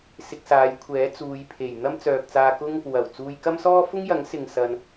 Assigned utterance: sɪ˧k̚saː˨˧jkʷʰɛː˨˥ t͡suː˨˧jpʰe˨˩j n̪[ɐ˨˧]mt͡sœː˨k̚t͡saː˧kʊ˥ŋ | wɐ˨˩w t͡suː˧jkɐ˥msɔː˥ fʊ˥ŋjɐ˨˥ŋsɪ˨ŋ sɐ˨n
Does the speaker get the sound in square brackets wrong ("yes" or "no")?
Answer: yes